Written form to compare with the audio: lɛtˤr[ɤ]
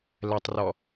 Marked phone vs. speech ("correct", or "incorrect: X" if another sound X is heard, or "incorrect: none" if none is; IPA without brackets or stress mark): incorrect: ɔ